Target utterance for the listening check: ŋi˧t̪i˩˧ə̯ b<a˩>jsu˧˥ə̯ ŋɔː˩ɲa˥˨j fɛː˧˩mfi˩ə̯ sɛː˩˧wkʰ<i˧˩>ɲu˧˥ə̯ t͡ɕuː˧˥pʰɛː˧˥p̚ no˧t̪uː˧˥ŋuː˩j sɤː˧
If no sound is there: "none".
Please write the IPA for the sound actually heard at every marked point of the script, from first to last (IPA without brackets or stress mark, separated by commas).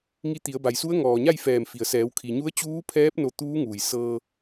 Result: a˩, i˩